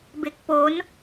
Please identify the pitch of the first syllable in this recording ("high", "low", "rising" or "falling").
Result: low